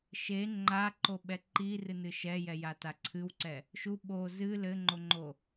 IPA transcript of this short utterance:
ʃe ŋ͡ǃaǃoɓɛ ǃirɨnɨ ʃɛjɛjata ǀʰɨwǀɛ | ʃu ɓo zɨ lɘŋ͡ǃoŋ͡ǃo

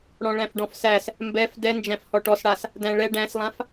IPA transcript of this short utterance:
ɽɔ̃ɭæ̃fɖɔ̃fsæs | mbɛf dɛnd͡ʒæ̃f hɔʈɔsɽas | dæ̃ɭɛ ɖæ̃slˠãf

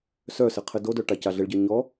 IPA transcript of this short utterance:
sœsɘ qʰɘdodœ ʈacaɮɘɭɟə˞ ɲɔ

